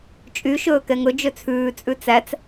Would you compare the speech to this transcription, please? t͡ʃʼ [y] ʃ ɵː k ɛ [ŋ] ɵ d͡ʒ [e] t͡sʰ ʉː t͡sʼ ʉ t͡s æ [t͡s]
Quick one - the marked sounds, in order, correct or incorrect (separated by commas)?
correct, correct, incorrect, correct